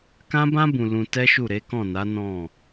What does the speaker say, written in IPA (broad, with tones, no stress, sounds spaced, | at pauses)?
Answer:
k ã˦ b ã˦ b ũ˧ l ũ˧ t ɛ˦ ʃ u˦˨ ɾ e˨˦ k ɔ̃˦˨ n a˨˦ n ɔ̃˦˨